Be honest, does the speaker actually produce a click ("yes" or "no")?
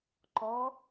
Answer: yes